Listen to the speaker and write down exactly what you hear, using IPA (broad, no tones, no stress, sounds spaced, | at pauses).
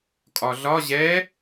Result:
kʼ ɒ ɮ ɒ ʑ ɛ